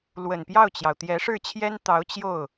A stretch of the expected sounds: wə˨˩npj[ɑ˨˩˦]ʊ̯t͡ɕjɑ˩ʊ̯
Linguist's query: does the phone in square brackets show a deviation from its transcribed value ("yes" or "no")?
yes